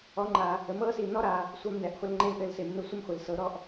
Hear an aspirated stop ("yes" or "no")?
no